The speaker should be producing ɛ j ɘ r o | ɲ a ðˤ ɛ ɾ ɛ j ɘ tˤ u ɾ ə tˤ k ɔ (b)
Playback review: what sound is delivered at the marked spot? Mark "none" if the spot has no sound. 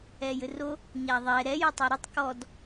d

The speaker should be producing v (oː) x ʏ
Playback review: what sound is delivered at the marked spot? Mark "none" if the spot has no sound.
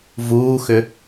uː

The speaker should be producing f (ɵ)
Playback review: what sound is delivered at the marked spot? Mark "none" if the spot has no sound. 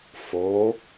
o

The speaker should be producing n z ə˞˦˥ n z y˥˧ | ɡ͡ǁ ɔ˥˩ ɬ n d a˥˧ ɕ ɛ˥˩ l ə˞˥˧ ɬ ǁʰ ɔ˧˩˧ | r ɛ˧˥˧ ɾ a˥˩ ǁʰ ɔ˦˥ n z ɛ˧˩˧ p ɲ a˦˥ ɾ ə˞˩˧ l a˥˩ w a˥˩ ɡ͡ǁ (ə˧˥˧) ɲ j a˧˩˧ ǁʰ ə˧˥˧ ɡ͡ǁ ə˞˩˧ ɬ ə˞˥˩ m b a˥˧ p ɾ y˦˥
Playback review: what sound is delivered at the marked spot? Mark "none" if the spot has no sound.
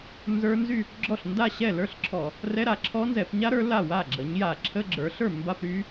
ə˩˧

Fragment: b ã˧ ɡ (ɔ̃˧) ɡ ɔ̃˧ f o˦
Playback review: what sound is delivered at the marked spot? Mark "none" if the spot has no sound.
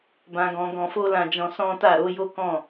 ɔ̃˧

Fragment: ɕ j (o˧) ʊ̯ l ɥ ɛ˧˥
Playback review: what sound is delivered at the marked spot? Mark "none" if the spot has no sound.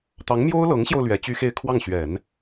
o˧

